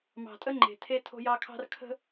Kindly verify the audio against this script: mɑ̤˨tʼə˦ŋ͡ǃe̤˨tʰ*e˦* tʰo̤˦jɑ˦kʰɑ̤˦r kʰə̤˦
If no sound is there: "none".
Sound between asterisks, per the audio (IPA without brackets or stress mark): e˦